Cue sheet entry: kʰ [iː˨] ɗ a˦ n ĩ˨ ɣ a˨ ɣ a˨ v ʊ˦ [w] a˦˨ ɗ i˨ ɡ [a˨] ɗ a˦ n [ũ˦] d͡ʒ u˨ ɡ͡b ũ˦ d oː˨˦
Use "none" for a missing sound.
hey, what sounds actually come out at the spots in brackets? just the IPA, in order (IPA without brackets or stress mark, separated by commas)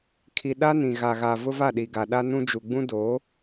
i˨, v, a˨, ũ˦